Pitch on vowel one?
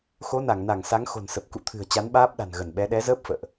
rising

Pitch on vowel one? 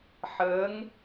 rising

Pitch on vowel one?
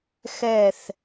falling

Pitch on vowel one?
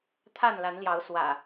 falling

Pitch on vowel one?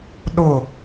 falling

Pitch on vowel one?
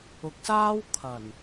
rising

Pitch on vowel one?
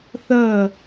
falling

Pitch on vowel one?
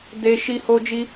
high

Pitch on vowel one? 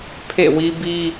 falling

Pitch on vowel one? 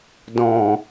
low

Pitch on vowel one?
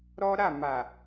high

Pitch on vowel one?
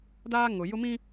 high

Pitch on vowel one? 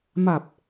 low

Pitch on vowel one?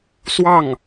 falling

